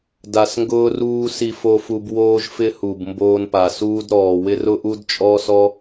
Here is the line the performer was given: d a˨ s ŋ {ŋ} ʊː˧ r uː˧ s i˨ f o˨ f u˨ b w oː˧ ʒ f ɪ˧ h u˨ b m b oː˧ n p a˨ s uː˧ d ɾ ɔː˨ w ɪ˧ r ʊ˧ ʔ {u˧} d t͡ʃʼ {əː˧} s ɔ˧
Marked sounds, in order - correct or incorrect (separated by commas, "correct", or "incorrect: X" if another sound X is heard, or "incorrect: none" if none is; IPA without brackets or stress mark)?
incorrect: ɡ, correct, incorrect: ɔː˧